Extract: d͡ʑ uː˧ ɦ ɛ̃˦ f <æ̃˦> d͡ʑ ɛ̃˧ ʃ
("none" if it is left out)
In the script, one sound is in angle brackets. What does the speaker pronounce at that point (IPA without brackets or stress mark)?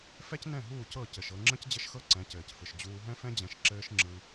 ɛ̃˦